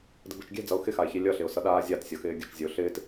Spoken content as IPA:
d ə̤ b ɛ̤ t͡ʃ ɡʲ ɛ̤ d͡z ʌ ʊ̯ x ɪ x a ɪ̯ ç i lʲ ʌ ɬ ɪ ʊ̯ s ʌ ɗ aː zʲ a t sʲ ʌ x ɪː ɡʲ ə̤ t͡ʃ zʲ ə ʊ̯ ɬ ɪː t

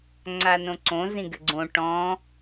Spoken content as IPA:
ŋ͡ǀ a n õ ǀ õ z ĩ ɡ ɘ ɡ͡ǀ õ ʈ ɔ̃

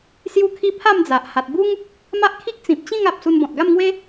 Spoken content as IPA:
s j u˦ kʰ i˦ pʰ a˥˧ m d͡z a˨ ʔ h a˨ t̚ b u˦ ŋ | m a˦ ʔ kʰ i˦ k̚ t͡s ĩ˨ p̚ t͡ɕ ĩ˥˧ ŋ a˨ p̚ s u˧ n b ɔ̃˨ t̚ ɡ a˥˧ m ŋ w e˦

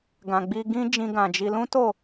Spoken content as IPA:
ɡ ã˨ ɡ͡b i˧ ɡ ĩ˦ d͡ʒ ĩ˧ ɡ ã˨ d͡ʒ i˧ l ũ˦ t o˦˨

